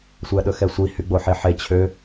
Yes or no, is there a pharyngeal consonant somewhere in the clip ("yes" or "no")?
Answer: yes